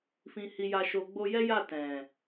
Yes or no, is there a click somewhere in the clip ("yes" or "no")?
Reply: no